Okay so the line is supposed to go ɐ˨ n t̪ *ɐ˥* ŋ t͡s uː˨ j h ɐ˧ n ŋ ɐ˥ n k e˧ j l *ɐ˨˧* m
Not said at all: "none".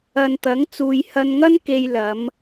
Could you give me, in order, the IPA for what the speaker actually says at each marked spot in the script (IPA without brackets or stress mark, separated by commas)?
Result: ɐ˨˥, ɐ˨˧